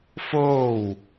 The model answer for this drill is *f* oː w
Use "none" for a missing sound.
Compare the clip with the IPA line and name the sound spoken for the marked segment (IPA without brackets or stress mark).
f